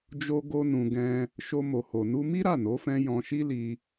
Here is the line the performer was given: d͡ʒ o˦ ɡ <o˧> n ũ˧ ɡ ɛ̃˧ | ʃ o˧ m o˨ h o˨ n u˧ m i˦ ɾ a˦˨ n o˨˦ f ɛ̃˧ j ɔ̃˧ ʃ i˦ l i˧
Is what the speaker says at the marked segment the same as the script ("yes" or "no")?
no